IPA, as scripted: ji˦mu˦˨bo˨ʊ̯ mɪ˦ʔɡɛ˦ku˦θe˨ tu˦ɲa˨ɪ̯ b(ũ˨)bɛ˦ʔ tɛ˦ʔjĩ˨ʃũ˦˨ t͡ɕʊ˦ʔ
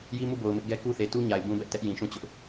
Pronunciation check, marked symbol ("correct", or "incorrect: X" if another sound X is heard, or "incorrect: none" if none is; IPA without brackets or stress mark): incorrect: ũ˦